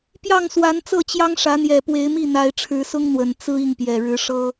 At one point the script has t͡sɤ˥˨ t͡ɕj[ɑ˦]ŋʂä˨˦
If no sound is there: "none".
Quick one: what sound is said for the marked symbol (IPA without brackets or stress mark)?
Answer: ɑ˦